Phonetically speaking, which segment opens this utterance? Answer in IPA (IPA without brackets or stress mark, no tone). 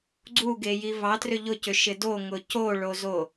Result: ɡ͡ǀ